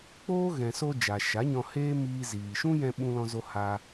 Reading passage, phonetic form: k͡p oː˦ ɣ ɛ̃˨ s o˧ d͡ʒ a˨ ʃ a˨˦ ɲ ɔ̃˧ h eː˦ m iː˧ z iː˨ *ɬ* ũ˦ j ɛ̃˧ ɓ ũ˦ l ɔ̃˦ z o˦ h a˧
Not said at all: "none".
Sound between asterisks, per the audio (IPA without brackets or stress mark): ʃ